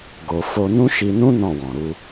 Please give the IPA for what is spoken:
ɡ o˧ f o˧ n ũ˦ ʃ i˧ n ũ˦ n ɔ̃˦˨ w ɔ̃˨ ɾ u˧

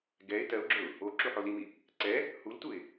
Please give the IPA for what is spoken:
ɡ ɛ ɪ̯ t ɜ ʊ̯ ɡ͡ǁ ɵ ʊ̯ | o ǁ u ħ o l i m i | ǀ ɛ | h u l t u ɪ̯

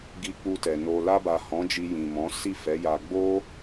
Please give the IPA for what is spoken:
ɡ i˧ k͡p u˧ t ɛ˨ n o˨ l a˧ b a˨ h ɔ̃˨˦ d͡ʒ i˧ j ĩ˨ m ɔ̃˨˦ s i˦˨ f ɛ˨˦ j a˧ ɡ͡b o˦

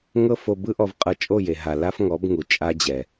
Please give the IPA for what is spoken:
ŋ ɤ˦ f o˧ b ɯ˦ ʔ ɔ˧ v qʼ ɤ˧ t͡ʃʼ o˦˨ j e˨ ɦ a˨ l a˦ f ŋ ɔ˨˦ b ŋ u˨ t͡ʃʼ a˦ d͡ʑ ɛ˨

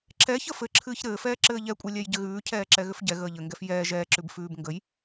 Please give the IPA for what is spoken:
ǁ ɛ ç ə f ɘ ǁʰ ɨː ç ɾ ɘː f ɛː ǁ ɘː ʎ ɛ kʷʼ ɛ lʲ ɛ j ɟ ɘ ɣ ʉː cʰ ɛː ǁ ɛ ɣ ʏ f ɟ ɛ ɣ əː ʎ ɘ ŋ ɡ ɛ f j ɛː ʒ ɛː ǁ ʉ b f ʉː b ŋ ɡ ə j

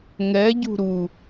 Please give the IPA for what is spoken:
ŋ ɛ ɟ ṳ ɾ u

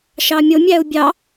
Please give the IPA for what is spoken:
ʃ ɑ mʲ o mʲ æ u̯ bʲ ɑ

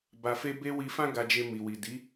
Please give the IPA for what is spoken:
b a˧ f e˦ b e˧ w i˧ f ã˦ ɡ a˧ d͡ʒ e˧ m i˨ w i˨ d i˨˦

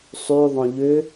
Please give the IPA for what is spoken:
sˤ y ðˤ õ ʎ ʏ

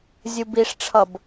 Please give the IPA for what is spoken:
zʲ u b i ʂ ʈ͡ʂʰ ʌ b

